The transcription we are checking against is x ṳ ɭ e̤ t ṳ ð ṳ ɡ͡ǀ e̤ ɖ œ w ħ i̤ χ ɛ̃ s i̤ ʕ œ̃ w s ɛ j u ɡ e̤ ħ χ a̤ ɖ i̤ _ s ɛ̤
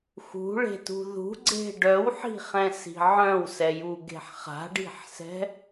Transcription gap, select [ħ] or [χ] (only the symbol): ħ